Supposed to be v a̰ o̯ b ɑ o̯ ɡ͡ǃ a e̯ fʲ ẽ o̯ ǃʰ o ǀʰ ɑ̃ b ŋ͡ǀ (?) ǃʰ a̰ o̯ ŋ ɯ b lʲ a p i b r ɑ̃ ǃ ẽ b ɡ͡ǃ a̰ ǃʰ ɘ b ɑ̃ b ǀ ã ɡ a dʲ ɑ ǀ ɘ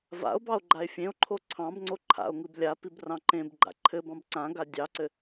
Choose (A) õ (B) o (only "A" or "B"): B